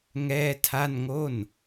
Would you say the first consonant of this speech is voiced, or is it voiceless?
voiced